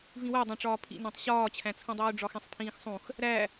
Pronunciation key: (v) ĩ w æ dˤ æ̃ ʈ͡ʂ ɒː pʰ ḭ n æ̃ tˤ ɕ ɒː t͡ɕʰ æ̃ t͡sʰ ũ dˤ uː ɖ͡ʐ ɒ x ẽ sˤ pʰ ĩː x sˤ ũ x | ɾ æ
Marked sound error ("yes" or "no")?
no